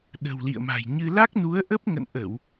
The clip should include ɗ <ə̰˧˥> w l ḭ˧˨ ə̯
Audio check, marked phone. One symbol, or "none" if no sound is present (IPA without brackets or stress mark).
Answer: ə̤˨˩